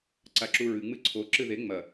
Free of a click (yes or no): no